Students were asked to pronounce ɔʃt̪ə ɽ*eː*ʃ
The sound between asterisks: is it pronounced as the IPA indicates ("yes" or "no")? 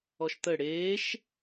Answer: yes